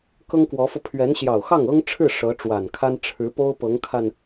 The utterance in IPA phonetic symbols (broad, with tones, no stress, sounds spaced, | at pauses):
k ɤ˥ ŋ k w ɔ˧˥ f ɤ˧ pʰ ɥ ɛ˧˥ n ɕ j ɑ˨˩ ʊ̯ x ɑ˥˩ ŋ ɤ˥ ŋ ʈ͡ʂʰ ɻ̩˥˩ ʂ ɤ˧˥ ʈ͡ʂ w a˨˩ n kʰ a˥ n ʈ͡ʂʰ ɻ̩˧˥ p o˥ ʊ̯ p ɤ˧˥ ŋ kʰ a˧ n